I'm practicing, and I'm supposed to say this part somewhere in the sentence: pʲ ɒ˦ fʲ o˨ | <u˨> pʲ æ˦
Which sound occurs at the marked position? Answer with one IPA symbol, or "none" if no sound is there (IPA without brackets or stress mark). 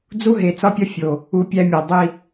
u˨